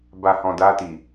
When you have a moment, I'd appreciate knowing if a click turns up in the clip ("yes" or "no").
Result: no